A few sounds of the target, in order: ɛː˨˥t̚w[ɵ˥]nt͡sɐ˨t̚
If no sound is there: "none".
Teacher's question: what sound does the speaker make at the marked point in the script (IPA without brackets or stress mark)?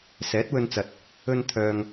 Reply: ɵ˧